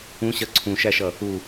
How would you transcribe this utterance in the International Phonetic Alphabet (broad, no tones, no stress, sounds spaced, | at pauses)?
ũ ɕ ɜ ǀʰ ũ ʃ æ ʃ ʌ | u